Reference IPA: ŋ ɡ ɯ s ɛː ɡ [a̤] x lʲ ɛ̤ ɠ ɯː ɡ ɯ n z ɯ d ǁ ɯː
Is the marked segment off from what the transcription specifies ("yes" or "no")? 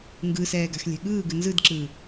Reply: no